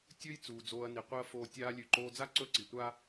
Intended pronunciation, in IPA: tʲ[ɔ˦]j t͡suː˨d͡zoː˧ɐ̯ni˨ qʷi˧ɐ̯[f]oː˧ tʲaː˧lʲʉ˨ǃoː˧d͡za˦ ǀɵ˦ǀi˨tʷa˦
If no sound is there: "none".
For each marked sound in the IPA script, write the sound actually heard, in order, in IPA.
ɵ˦, f

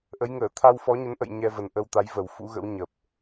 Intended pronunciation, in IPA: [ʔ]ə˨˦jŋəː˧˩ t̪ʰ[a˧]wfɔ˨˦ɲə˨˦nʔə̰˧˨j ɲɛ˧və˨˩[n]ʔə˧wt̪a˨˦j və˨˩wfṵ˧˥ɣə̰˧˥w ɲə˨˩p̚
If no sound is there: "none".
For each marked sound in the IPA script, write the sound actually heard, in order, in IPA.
ʔ, a˧, n

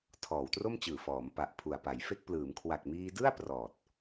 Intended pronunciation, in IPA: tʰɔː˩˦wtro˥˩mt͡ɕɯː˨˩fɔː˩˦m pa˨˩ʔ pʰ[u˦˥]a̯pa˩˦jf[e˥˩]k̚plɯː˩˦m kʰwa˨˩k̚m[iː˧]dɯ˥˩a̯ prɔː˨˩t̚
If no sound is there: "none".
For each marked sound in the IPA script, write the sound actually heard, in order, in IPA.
u˨˩, e˥˩, iː˧

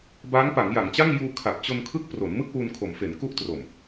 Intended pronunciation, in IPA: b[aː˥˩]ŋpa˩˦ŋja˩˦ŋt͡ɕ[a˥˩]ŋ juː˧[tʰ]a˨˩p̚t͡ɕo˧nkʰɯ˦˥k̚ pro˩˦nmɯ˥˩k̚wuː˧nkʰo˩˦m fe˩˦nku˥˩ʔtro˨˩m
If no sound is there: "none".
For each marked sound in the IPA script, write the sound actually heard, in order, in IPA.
aː˦˥, a˥˩, kʰ

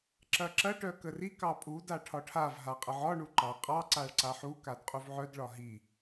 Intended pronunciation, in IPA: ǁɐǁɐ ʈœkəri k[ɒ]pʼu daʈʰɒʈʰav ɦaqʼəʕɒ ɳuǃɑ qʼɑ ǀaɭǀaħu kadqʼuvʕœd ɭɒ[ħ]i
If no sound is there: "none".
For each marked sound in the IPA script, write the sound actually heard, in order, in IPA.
ɑ, ɦ

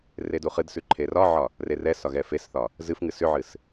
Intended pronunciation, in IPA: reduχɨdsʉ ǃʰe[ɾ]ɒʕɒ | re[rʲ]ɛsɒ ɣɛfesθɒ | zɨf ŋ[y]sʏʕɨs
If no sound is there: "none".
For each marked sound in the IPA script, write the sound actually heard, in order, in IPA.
r, r, ɨ

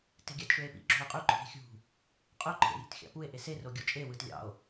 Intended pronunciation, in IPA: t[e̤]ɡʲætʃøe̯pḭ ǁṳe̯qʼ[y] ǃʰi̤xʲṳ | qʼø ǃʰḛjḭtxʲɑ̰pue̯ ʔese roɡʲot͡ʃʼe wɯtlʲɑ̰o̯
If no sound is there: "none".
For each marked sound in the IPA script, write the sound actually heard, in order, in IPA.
e̤, y

